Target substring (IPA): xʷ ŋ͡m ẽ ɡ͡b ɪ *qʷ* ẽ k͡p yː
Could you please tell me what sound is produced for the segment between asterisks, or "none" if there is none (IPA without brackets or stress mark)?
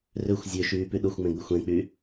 xʷ